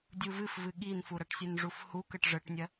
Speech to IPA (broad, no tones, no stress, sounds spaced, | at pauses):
dʲ u v ɨ f v ɨ ɠ i n f u ɾ ɐ ʈ sʲ ɨ n ʐ u f h u k ə ʈ ʐ ə ʈ nʲ ɐ